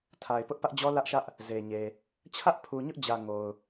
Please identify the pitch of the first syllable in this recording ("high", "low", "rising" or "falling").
low